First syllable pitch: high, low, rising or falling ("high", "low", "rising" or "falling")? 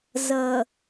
low